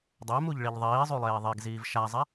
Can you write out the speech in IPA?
dˤɛmuʎɭiʎ ðˤiːzˤulˠeː ðˤeɡziːv ʃazˤɛ

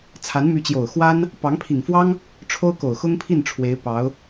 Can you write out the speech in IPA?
t͡sʰa˧˥nmy˧˥t͡ɕjo˨˩ʊ̯ xwa˥n | pɑ˧˥ŋpʰi˨˩ŋfwɑ˥ŋ | ʈ͡ʂʰo˥ʊ̯ko˨˩ʊ̯ xʊ˥ŋpʰi˥˩n ʈ͡ʂʰwe˧˥ɪ̯ pɑ˧˥ʊ̯

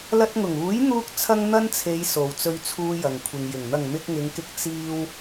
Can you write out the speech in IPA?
lɐ˧t̚ŋʊ˨˩ŋuː˨˥j n̪uː˥k̚t͡sʰɐ˥ŋ n̪ɐ˥nt͡sʰe˨˧j so˨wt͡sɵ˧ɥt͡sʰuː˧ jɐ˨ŋkʷʰɪ˨ŋjɪ˨˩ŋ n̪ɐ˨˩ŋ mɪ˧k̚ŋɪ˨˧ŋkɪ˧k̚ t͡siː˧w

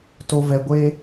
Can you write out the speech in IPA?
to˧vɛ˧ɡʷe˦

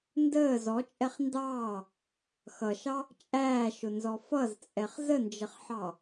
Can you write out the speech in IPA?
ndəː zɔt͡ʃʼɛχ ndɑː | xʌʃɑ | t͡ʃʼæːʃʊnzɔ fʌzt͡sʼɛχ zənd͡ʒəχħɑ

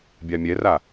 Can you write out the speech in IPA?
bʲamʲɛra

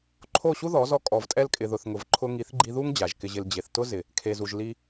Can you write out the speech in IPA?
ǃʰo˦˨ɕu˦ðɔ˨˦zɔ˧ kʼɔ˨vtʼɛ˧lkʼɪ˨ðʊ˨θ ŋʊ˨vǃʰʊ˧ŋi˨˦θɡ͡ǃi˧ ðu˦ŋ d͡ʑa˨ʒkɪ˧ʑɪ˧l d͡ʑe˨θtʊ˦ zɪ˨ | kʰe˨zu˨ʒ li˧

